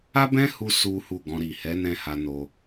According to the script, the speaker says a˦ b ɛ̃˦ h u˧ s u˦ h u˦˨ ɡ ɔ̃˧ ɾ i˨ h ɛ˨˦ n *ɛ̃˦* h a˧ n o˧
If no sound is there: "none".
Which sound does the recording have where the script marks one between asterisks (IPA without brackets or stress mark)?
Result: ɛ̃˦